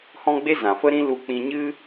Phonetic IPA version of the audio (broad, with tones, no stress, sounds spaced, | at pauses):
h ɔ̃˦ ɡ͡b e˦ z ã˨ f ə˦ ɾ ĩ˦ l u˧ k͡p ĩ˧ ɲ ɨ˦